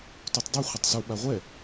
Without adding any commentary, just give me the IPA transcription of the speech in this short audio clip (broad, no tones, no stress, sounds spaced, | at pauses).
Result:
t u tˤ dˤ ɯ χʷ ʌ tˤ s u ɓ a ʁʷ ɛ